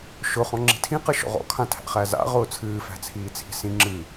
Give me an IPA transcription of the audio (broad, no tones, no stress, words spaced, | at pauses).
ʃʊ χɔ̃ŋ͡ǁi̤tʰĩ qɨʃɔ̰ʁɔ̰ kʰãtʰæ̰χæza̰ ʁʊːt͡sʰɨː fæ̤t͡sʰiːt͡sʰi̤sĩ ŋ͡ǁɨ